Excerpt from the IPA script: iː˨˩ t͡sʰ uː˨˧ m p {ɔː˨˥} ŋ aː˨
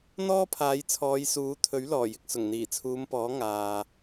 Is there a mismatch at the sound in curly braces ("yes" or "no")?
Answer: no